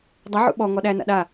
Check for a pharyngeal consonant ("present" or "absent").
present